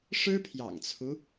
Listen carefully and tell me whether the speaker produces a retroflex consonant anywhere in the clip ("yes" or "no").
yes